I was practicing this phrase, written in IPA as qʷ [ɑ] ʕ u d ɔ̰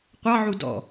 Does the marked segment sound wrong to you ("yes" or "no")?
no